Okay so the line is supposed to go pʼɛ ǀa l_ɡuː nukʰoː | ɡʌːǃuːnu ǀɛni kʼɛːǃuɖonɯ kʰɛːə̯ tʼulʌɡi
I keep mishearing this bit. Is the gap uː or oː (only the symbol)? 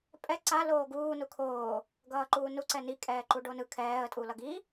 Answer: oː